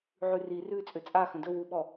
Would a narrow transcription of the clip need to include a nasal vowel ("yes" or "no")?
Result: yes